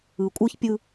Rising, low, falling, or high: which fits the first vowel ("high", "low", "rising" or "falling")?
low